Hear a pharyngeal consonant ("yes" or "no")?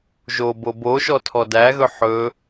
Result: yes